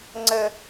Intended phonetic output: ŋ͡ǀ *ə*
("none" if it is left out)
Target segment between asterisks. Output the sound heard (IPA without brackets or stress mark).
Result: ə